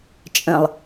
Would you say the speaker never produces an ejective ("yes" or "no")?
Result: no